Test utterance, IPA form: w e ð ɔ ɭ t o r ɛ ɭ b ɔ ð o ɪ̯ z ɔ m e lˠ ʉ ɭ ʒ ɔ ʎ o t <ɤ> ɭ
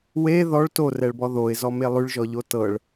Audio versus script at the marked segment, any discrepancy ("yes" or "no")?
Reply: no